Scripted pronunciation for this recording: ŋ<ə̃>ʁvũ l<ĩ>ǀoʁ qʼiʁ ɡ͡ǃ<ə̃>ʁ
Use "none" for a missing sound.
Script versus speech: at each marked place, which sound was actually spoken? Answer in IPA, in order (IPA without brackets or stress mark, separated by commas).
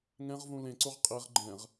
ɛ̃, ẽ, ɛ̃